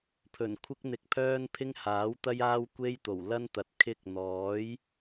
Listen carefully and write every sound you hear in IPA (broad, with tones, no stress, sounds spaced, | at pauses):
pʰ ɵ˨˩ n kʷʰ ɪ˥ k̚ n̪ ɪ˧ k̚ pʰ œː˥ n pʰ ɪ˥ ŋ h aː˨˥ w t̪ ɐ˥ j aː˥ w kʷ e˥ j t̪ o˨˩ w l ɐ˥ n t̪ ɐ˨˥ t̚ kʰ ɪ˥ k̚ n̪ ɔː˨˥ j